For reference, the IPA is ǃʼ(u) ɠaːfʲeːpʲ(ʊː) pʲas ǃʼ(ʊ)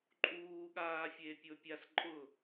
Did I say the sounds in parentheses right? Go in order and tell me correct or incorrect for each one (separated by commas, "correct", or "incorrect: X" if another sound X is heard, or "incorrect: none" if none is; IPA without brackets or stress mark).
incorrect: uː, correct, correct